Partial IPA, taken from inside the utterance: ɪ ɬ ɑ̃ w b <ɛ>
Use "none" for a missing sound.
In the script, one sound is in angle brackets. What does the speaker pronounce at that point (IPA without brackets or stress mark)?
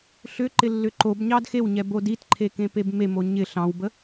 ə